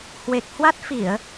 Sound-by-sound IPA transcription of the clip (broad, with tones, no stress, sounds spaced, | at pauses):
h w e˨˩ k̚ h w a˦˥ t̚ f i˧˩˨ ə̯